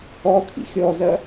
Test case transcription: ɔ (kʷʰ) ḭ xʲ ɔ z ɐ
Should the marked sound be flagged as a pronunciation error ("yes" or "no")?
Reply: yes